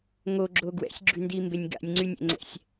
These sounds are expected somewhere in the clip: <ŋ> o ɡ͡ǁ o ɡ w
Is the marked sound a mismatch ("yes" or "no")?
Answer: no